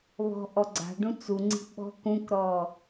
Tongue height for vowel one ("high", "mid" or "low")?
mid